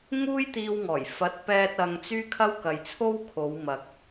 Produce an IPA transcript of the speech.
ŋ uː˥ j t̪ iː˧ w ŋ ɔː˨˩ j f ɐ˨˥ t̚ p ɛː˧ t̚ ɐ˧ ŋ t͡s yː˥ kʰ ɐ˥ w k ɐ˨ j t͡sʰ o˥ w kʰ o˨˧ w m ɐ˨ k̚

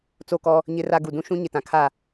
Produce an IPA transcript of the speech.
t͡s o˦˨ k ɔ˦ | ɲ ɪ˦ r a˦ ɡ u˨ d ũ˦ ʃ ũ˦ ɲ ɪ˨ t ã˨ kʰ a˦˨

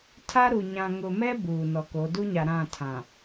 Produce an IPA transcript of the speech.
tʰ a˦ ɾ u˨ ɲ ã˨ ŋ ʊ˨ m ɛ˦ b uː˨ n ɔ˨ k o˨˦ d u˦ ɲ a˨ ɾ ã˦˨ tʰ ã˨

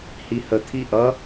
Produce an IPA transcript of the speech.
h i h ə t̪ʰ i ʔ ʌ

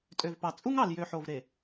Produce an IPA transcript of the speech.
tʼ ø˨ v p ɑ˨ t͡sʼ u˦ ŋ ɑ˨ l j ø˨ ħ o˨ v ɾ e˨

